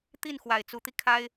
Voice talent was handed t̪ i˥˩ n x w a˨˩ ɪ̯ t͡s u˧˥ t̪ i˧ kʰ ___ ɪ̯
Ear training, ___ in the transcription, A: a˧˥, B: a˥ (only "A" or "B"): B